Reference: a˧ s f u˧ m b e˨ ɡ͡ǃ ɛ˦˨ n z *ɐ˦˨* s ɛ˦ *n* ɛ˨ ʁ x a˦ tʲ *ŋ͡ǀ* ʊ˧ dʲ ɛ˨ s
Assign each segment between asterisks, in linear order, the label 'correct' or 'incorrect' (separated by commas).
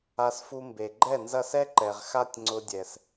correct, incorrect, correct